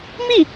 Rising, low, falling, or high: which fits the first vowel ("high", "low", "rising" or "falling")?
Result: falling